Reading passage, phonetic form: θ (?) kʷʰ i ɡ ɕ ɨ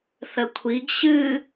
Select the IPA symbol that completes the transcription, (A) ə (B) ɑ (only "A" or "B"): A